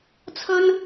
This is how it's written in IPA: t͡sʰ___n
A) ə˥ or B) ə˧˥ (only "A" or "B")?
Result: A